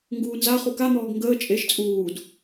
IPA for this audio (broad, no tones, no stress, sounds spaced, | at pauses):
ŋ ɡ uː n z a χ u k a n̪ ɔː ɡ ŋ ɡ əː t͡ʃʼ e ʃ t͡sʼ uː d